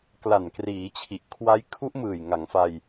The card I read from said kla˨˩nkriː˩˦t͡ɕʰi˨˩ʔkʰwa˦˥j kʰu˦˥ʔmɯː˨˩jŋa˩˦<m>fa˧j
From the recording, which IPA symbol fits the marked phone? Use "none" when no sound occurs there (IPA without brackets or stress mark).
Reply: ŋ